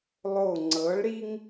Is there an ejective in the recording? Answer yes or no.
no